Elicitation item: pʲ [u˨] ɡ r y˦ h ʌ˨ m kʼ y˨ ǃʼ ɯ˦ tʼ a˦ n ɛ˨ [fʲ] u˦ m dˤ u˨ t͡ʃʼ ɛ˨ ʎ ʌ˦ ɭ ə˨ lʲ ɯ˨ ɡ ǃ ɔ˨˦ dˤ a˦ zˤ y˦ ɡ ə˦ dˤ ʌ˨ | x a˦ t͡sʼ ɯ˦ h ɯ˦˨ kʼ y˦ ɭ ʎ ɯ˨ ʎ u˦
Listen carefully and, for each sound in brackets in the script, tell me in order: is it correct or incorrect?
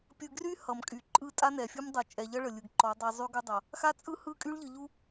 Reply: incorrect, correct

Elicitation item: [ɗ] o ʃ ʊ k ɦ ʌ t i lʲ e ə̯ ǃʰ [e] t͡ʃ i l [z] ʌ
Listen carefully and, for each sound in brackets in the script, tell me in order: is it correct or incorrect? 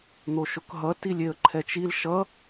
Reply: incorrect, incorrect, incorrect

